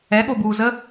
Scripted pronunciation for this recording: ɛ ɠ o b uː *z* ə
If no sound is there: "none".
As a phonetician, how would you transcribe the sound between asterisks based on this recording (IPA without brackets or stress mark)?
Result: z